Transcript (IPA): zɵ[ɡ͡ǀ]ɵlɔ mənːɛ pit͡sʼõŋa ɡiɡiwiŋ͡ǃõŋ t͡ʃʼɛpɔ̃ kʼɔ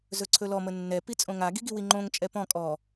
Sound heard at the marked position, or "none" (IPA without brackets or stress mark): ǀʰ